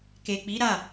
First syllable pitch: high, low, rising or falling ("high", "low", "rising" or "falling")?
low